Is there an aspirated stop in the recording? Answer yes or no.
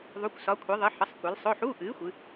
yes